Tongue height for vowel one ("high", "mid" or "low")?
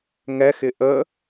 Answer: mid